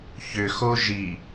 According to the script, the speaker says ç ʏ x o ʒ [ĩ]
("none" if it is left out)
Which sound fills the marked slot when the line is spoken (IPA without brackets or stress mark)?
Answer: i